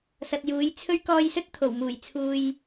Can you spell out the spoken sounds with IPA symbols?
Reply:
s ɐ˨ t̚ j uː˨˥ j t͡sʰ ɵ˥ ɥ k ɔː˧ j s ɵ˥ t̚ t̪ʰ o˨˩ w m uː˨˩ j t͡sʰ uː˧ j

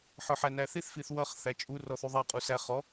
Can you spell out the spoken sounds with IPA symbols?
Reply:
ħ ə˞ ħ æ n æ θ i θ f i θ w ʌ χ θ æ t͡ʃʼ u r ɔ θ u ðˤ æ qʼ u s æ χ ɔ

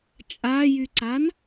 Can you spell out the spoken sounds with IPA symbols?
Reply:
t͡ʃʼ a j y ǀ a n

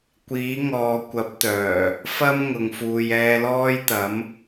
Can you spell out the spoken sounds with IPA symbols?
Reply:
kʷ iː˨˥ ŋ ɔː˨ kʷ ɐ˨˥ p̚ t̪ œː˨˩ | f ɐ˥ m ŋ ʊ˨ ŋ f uː˨ j ɛː˧ l ɔː˥ j t̪ ɐ˨˥ m

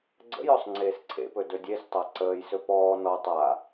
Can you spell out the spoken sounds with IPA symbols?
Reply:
ɡ͡ǀ ə̰ j ɔ sˤ ŋ͡ǀ eː s ǀʰ ḛ p ɵ d ɵ dʲ e s tˤ a ǀ əː j s ɵ p ɔː n ɔ tˤ a

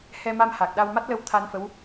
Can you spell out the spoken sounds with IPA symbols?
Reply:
h ɛ˧ m a˧ m h a˨˩ k̚ ɗ a˧ w m a˦˥ t̚ l ə˧ w t̪ʰ a˧ n f ə˧˥ w

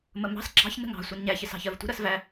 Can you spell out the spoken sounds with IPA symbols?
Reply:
m ə m ɑ̤ s ɡ͡ǁ ɑ̤ ç n ə̤ ŋ ɑ̤ sʷ ɜ n ɲ æ ç ɪ s ɑ̤ ç ɜ v tʷ ə̤ ɾ ɜ s v æ

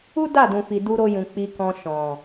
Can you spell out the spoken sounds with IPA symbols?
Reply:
u˦ d a˦˨ d ũ˨ f i˨ d u˧ ɾ o˧ j ũ˨ k͡p i˧ k ɔ̃˧ ʃ ɔ̃˨

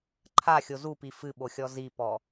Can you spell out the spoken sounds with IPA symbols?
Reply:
ǃʰ a xʲ o z u p i f ɨ ɓ o xʲ ɔ z i p ɔ

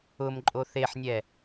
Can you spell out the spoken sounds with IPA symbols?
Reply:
ʊ m ǃʼ o θ e ħ nʲ ɛ

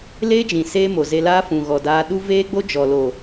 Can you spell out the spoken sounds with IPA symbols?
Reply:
l eː˦ d͡ʒ ĩ˨ s eː˦ m o˨ z e˧ l aː˦ f ũ˨ ɣ ɔ˨ d aː˧ ɗ u˦ v eː˦ ɡ͡b o˦ d͡ʒ ɔ˨ l o˨

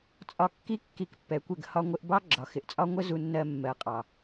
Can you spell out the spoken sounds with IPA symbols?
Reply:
t͡sʼ ɒ˧ kː i˦ kː i˧ k pː ɛ˨ kʷ ɪ˦˨ ɡ h ɒ˧ ŋʷ ɪ˧ ʔ b ɑ˦ ɡ͡ǁ ɒ˨ x ɪ˨ ʔ t͡sʼ ɒ˦ ŋʷ ə˦ z u˧ nː ɜ˧ mː ɜ˨ qʼ ɑ˨

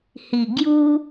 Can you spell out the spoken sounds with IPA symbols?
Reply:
h i˨˩ ɡ j u˦

